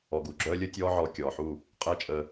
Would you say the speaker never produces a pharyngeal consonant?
no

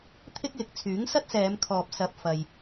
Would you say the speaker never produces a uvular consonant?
yes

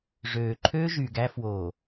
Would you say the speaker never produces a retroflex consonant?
no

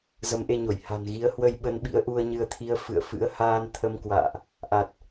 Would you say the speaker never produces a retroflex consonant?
yes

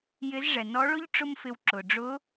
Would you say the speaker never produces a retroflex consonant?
no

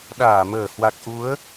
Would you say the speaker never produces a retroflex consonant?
yes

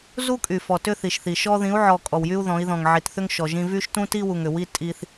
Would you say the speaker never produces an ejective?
no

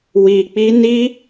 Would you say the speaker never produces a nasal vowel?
yes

